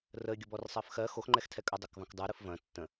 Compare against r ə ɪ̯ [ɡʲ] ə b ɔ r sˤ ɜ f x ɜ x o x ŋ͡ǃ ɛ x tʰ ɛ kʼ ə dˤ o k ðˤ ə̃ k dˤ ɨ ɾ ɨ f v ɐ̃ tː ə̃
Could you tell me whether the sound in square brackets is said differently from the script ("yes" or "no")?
no